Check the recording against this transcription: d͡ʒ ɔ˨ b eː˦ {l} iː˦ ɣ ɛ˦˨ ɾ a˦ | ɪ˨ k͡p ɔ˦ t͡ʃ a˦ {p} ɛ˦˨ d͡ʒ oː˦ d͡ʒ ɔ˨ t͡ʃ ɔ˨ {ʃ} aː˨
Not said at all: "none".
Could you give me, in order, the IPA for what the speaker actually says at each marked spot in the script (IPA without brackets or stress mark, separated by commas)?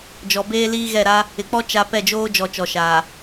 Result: l, p, ʃ